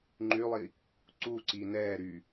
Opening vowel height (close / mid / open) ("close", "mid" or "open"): close